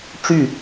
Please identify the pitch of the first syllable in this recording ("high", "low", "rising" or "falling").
falling